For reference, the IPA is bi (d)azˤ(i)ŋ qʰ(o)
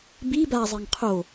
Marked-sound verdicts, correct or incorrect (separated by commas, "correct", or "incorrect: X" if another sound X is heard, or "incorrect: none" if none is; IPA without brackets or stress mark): incorrect: b, incorrect: e, correct